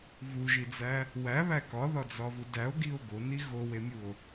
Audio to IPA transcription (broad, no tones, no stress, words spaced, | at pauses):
vuʒid͡zæ | wæβæ kɒðɒd͡zɒvu dæo̯ɡio̯ ɡoni ɣowemʲuo̯